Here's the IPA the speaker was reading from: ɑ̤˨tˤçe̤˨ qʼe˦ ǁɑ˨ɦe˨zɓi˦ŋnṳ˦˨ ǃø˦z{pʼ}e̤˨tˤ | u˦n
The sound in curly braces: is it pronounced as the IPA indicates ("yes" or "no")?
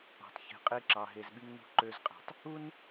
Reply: no